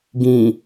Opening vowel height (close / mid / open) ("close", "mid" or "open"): close